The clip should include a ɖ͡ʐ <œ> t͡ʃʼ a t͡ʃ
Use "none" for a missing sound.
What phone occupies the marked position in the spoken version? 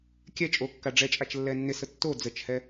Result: ɛ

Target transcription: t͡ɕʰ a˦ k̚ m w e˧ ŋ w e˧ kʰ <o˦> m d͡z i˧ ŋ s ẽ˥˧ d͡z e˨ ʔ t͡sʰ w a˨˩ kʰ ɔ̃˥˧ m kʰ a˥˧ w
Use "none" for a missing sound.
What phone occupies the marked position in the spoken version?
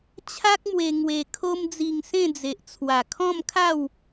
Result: o˦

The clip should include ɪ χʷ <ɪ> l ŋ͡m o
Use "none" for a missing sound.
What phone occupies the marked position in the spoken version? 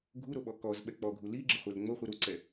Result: ɛ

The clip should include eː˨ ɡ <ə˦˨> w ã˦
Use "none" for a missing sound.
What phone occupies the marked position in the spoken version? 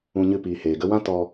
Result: ə˧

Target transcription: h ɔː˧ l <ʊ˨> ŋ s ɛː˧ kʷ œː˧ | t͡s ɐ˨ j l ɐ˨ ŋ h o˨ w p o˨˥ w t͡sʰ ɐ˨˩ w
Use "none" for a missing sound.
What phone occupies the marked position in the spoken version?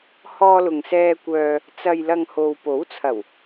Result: ʊ˨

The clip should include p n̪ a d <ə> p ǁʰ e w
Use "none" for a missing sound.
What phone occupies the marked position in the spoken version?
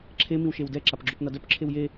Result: œ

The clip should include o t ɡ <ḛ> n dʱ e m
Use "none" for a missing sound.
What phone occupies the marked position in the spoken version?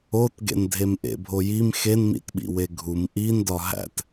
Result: ḛ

